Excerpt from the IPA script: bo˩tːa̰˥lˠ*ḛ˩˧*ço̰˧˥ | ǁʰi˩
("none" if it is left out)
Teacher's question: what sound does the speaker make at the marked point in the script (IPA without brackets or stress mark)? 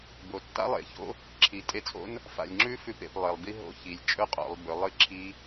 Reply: ḛ˩˧